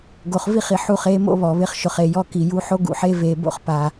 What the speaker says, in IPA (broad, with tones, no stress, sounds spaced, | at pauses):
ɡ o˨ χ v i˦˨ χ i˨ ħ u˦˨ χ eː˦ m o̰˦ β ɔ˨ β ɪ˦ χ ʃ ʊ˨ χ e˨ j ɔ˦ k i˨ j u˦ ħ o˦ ɡ ṵ˨ ħ e˦ v eː˨ b o̰˦ χ p a˦